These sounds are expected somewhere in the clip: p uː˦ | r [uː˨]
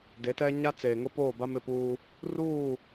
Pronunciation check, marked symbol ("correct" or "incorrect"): incorrect